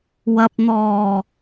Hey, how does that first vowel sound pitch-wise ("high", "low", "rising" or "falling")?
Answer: low